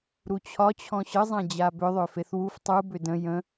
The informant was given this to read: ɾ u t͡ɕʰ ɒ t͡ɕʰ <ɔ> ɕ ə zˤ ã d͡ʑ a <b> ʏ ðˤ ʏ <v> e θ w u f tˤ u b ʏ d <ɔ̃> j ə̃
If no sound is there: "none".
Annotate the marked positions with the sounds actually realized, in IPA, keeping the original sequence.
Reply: ɔ̃, b, f, ə̃

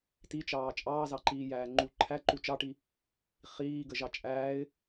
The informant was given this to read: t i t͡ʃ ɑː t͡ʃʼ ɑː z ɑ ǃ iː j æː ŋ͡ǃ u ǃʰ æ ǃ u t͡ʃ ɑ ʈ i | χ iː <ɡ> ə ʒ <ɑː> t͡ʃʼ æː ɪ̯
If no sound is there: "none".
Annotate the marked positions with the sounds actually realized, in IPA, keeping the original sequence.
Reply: ɡ, ɑ

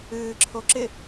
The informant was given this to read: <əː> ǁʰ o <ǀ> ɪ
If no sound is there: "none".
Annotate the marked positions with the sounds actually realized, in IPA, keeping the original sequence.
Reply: ɨː, ǁ

